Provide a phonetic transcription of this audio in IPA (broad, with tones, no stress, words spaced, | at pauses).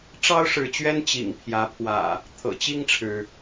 ʈ͡ʂɑ˦ʊ̯ ʂɻ̩˨˦t͡ɕɥɛ˦n t͡ɕḭ˨˩ŋpʰjä˨˦pʰwä̰˨˩ | t̪ʰɤ̰˨˩t͡ɕi˥˨ŋʈ͡ʂʰɻ̩˩